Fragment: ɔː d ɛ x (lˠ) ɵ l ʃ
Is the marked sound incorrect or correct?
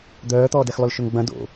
correct